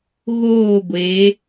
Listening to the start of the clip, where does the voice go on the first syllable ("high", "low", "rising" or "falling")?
falling